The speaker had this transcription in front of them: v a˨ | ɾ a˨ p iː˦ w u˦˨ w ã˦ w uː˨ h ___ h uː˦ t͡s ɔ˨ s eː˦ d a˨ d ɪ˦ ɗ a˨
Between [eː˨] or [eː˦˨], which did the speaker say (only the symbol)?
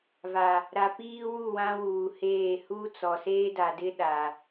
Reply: eː˦˨